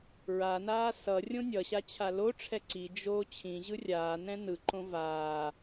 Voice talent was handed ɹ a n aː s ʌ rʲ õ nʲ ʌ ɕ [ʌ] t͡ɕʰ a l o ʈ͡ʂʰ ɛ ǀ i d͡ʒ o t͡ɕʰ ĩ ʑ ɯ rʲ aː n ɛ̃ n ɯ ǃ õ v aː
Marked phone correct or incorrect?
incorrect